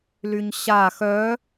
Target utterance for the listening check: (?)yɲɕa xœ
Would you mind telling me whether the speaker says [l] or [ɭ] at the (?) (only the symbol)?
l